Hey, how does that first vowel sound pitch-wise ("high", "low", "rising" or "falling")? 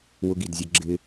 high